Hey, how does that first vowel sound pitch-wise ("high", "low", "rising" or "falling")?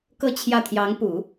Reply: falling